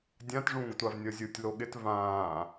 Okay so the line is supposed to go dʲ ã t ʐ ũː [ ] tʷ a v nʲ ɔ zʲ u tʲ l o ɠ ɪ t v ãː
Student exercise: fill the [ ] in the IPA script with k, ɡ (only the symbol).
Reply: ɡ